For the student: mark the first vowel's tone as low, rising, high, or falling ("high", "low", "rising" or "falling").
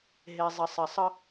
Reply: low